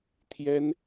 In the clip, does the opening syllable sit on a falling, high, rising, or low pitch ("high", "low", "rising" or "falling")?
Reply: high